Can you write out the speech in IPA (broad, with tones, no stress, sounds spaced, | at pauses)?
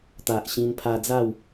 t̪ a˨ ʔ ɕ ĩ˧ n pʰ a˧ d͡z a˥˧ w